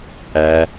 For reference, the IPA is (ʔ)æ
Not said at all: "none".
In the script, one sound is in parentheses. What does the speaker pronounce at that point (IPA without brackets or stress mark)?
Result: ʔ